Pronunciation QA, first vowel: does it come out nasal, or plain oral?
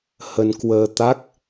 oral